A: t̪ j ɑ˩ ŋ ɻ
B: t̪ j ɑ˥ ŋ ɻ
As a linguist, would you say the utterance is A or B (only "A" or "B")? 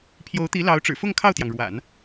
A